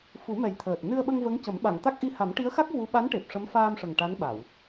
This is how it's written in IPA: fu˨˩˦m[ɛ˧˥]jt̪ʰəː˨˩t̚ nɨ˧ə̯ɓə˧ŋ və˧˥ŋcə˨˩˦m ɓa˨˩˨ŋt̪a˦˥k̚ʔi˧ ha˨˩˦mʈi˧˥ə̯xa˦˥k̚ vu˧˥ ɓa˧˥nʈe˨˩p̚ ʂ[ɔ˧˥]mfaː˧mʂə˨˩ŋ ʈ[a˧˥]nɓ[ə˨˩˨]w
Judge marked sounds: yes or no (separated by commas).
no, no, yes, no